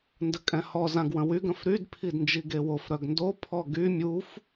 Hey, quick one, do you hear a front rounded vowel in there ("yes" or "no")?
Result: yes